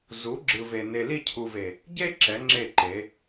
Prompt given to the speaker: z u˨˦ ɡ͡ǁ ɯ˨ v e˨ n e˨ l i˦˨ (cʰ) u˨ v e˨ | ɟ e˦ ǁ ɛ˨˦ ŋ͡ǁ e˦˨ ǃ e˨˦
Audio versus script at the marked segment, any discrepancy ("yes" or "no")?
no